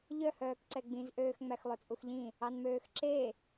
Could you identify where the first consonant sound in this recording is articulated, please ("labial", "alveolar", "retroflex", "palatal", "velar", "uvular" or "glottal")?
palatal